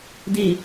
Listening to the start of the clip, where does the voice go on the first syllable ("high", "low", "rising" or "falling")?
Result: low